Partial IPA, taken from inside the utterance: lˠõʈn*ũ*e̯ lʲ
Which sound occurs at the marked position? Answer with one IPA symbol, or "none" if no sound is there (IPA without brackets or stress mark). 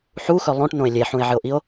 õ